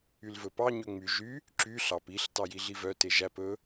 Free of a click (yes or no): no